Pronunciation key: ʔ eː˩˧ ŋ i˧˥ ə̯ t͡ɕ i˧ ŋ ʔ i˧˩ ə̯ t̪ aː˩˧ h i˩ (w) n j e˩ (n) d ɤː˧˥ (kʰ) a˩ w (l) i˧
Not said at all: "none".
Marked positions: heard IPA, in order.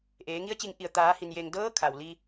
none, ŋ, kʰ, l

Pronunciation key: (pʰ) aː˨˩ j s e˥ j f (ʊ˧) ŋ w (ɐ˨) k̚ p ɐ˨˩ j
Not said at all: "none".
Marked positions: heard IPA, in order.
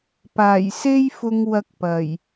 p, ʊ˧, ɐ˧

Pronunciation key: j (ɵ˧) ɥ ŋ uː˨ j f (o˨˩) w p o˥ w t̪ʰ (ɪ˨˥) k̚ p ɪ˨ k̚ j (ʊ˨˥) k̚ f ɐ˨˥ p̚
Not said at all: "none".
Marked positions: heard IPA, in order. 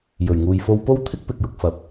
ɵ˨˩, o˧, ɪ˥, ʊ˨

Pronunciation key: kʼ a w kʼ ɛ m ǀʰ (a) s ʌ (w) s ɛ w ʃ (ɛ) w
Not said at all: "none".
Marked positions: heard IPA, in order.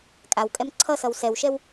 ʌ, w, ɛ

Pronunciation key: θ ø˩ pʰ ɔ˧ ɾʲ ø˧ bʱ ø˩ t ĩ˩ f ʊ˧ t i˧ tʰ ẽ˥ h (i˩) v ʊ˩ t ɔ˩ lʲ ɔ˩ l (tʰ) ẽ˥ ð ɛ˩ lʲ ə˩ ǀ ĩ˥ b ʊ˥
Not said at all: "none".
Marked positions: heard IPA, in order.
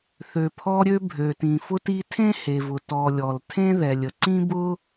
e˩, tʰ

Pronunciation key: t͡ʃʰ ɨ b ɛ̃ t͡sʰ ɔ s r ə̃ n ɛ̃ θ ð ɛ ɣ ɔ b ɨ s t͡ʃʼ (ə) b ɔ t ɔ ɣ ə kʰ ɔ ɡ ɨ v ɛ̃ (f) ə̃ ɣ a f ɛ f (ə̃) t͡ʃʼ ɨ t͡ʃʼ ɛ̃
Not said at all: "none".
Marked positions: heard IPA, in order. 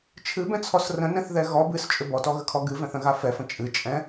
ʏ, θ, ə̃

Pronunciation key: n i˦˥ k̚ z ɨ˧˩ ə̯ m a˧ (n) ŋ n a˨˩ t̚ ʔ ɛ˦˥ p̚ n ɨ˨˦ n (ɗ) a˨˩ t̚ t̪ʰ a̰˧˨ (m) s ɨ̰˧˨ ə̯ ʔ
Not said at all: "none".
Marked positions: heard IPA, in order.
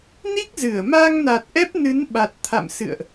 none, ɓ, m

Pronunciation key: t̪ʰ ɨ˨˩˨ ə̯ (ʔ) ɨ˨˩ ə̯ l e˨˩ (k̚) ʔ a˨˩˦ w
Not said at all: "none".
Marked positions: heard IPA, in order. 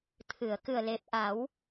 k, p̚

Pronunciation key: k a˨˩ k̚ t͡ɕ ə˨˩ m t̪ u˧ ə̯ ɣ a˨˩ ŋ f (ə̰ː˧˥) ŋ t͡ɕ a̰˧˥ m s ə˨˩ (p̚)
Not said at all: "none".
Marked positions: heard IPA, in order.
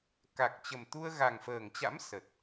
əː˨˩, t̚

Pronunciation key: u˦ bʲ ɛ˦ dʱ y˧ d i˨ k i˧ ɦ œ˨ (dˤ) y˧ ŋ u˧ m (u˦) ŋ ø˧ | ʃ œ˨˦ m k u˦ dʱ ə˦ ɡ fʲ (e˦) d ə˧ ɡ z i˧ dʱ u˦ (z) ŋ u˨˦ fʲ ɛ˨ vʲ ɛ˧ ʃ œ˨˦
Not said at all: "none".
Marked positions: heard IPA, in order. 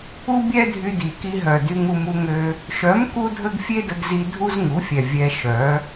d, u˦, e˦, z

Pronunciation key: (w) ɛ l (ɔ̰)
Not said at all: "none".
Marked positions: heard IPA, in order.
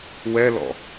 w, ɔ̰

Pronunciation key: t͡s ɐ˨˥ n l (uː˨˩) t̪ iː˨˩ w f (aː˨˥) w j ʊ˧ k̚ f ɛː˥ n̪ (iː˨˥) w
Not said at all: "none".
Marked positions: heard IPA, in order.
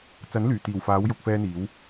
yː˨˩, aː˨˥, iː˨˥

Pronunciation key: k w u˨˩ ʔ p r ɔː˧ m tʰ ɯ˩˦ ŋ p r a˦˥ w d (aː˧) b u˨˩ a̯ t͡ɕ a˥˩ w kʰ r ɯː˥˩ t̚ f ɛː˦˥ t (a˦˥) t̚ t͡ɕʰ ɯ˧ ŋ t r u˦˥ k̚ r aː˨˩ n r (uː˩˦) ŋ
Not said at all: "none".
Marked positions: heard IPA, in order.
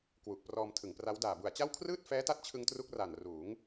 aː˨˩, a˦˥, uː˩˦

